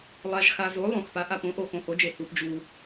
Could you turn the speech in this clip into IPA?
lˠ a˨ ʒ x a˨ z o˩˥ lˠ õ˨ x p a˩˥ ʔ a˨ p õ˩˥ ʔ o˨ x õ˨ h o˩˥ d͡ʒ e˨ h u˨ p d͡ʒ u˨

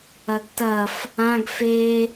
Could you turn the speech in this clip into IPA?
ɐ ɡ t ɐ f | ã ɡ f e

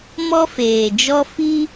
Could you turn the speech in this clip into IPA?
m ɔ˦ f eː˨ d͡ʒ ɔ˦ f i˦

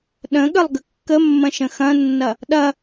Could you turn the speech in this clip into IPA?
ɗ ə̃ ɠ ə lˠ ɡ ə kː ə mː ɐ̃ ʃ ə̃ x ɐ̃ nː ɐ | ɗ ɐ

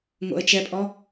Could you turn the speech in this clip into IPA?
ŋ o̰ ə̯ t͡ʃ ɛ pʼ ɔ

